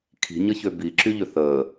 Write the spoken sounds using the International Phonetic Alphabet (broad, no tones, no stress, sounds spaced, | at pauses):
kʰ i̤ ɲ ə ç ø b i ǁ y ʎ ø θ əː